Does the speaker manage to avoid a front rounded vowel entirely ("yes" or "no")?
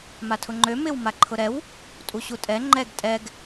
no